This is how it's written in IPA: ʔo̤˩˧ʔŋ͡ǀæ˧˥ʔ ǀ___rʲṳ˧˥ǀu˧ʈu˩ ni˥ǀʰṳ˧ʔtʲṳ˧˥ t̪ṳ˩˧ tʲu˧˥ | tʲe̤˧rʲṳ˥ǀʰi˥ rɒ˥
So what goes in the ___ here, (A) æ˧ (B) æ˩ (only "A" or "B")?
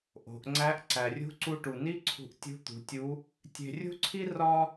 B